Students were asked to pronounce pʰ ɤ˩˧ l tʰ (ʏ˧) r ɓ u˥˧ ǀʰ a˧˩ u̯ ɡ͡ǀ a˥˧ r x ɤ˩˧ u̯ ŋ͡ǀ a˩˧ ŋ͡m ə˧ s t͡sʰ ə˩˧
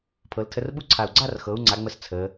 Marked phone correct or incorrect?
incorrect: ə˧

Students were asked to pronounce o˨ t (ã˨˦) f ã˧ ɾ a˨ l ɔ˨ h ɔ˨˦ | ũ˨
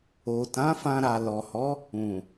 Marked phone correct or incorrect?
correct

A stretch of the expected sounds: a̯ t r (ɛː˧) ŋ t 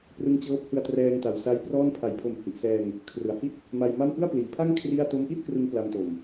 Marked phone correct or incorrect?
correct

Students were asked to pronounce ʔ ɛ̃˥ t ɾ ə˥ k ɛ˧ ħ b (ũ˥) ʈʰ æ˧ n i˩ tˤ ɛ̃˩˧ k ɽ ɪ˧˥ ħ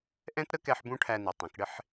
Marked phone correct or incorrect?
correct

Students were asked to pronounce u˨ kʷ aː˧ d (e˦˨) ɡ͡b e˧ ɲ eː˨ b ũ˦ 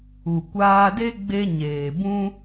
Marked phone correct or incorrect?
incorrect: e˦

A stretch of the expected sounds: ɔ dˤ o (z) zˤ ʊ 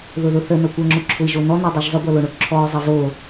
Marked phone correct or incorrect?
incorrect: ʒ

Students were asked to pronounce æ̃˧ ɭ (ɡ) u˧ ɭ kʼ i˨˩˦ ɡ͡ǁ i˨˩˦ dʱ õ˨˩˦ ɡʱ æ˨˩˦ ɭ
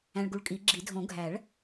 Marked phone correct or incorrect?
correct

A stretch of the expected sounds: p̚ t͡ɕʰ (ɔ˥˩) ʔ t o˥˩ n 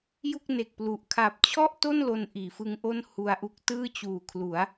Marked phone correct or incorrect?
correct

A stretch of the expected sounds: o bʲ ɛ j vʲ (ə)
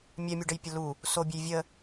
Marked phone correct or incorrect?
correct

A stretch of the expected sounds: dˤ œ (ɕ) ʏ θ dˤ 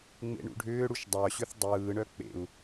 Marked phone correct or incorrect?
correct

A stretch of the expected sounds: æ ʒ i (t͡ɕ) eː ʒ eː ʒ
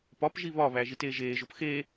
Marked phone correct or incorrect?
incorrect: t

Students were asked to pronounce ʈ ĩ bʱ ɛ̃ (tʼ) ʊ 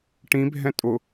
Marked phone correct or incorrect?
correct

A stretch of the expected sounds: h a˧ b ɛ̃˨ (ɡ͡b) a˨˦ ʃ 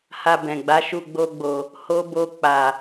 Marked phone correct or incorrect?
correct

